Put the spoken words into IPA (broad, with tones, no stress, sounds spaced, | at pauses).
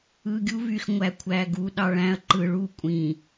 ɯ˨ ɡʲ u˦ v y˨ x ŋʷ æ˨ kʷʰ æ˨ ɡ u˨ ɗ ɑ˨ ɭ æ̃˦ ɐ̯ ǃ ɯ˨ ɭ u˦˨ kʷʼ ĩ˨